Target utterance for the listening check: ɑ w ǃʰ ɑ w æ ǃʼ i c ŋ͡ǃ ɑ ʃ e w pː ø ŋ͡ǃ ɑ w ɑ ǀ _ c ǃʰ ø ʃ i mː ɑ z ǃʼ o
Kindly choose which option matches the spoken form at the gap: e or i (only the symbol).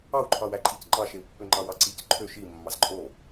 i